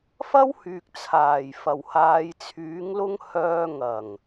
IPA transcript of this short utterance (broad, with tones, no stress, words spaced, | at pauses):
fɐ˥whyː˨k̚t͡sʰaː˨˩j fɐ˨˩whaː˨˧jt͡sʰyː˨˥ŋlʊ˥ŋ hœː˧ŋɐ˨˩ŋ